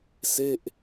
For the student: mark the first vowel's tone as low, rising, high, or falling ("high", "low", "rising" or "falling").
falling